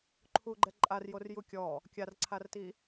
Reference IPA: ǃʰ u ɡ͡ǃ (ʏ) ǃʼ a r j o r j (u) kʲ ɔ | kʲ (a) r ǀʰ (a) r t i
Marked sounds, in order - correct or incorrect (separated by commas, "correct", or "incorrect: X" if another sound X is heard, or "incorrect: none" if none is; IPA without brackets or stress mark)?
incorrect: ɛ, correct, correct, correct